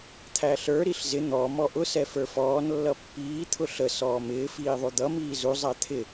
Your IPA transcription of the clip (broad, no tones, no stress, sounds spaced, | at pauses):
t̪ʰ æ ɬ ə˞ ɾ i ɬ z ɪ n̪ ɔ m ɔ ʔ ʊ s ɛ f ə˞ f ɔː n lː ʌ pː iː t̪ʰ ʊ ɬ ə s ɔː m ɪː f iː ðˤ u d̪ ʌ m iː z u zˤ æ t̪ʰ ɪ